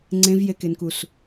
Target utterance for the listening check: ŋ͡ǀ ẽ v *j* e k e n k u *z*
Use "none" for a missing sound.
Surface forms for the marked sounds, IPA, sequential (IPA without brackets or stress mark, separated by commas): j, s